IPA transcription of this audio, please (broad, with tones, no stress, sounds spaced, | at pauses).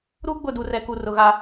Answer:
ɾ u˦ ɡ͡b ʊ˦˨ d u˨ r ɛ˨ k u˨ r ʊ˨ ɣ a˦